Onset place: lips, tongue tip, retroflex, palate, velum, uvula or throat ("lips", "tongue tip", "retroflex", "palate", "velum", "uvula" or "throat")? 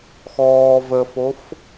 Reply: velum